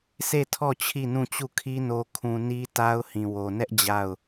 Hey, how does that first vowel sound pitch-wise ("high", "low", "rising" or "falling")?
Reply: falling